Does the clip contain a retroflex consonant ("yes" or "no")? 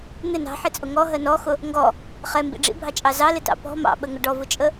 yes